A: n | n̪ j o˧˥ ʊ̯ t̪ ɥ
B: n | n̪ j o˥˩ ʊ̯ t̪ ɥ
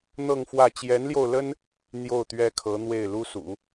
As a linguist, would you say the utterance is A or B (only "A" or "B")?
B